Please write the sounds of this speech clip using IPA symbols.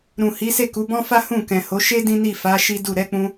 ɾũ˨hi˨˦se˦˨ku˨˦ bɔ̃˦fa˦ hũ˦˨kɛ̃˨ho˨˦ ʃe˦ dĩ˦ni˦˨fa˨˦ ʃi˦du˦˨ ɾɛ˨˦k͡pũ˧

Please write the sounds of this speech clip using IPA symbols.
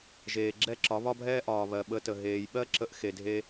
ʒeː˨ɡ͡ǁɛ˦˨ ǁɒ˨˦βɒ˦bʱɛː˦ ʔɒː˨βɜ˨ ɓə˧tə˨ ɦeː˨jɓɜ˦ ǁə˧ʔxe˨dʱe˧

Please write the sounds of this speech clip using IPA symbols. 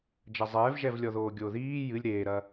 d͡ʒɐzˤɛːvʒɛvlʲɔ ðoːɡʲoːðiː jɨlʲ ɾeːɾɐ

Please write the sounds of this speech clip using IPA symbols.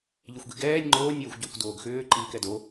ʎɪxʷɡiɡɛːnʲ ŋ͡ǃoːnʲ ɛːxʷɟʏːkʷdoːɡxʏː ǃiːkɛdo

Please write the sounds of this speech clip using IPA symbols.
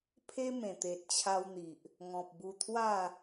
pʰe˦mẽ˨˩t̪e˨t̚ t͡ɕʰa˧wn̪i˨ʔ | ŋɔ̃˨p̚bu˧ t̪ʰwa˥˧

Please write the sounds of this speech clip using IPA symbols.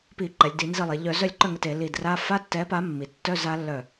pi˧˩˧ǃɛ˩˧lʲdi˧˩˧ nzi˧˩lˠe˩˧ ʎœ˧˩˧ zœ˥˩lʲǃœ˥˩ŋɛ˧˩t e˧˩˧li˧˩dra˧˥˧ fa˧˥˧tːɛ˨˥pa˨˥mːi˩˧ tːœ˧˥˧za˨˥lːœ˧˩

